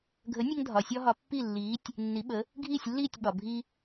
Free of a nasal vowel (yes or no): yes